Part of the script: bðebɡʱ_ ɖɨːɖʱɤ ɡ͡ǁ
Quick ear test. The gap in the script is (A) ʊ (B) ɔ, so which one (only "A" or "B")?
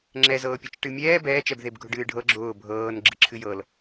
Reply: A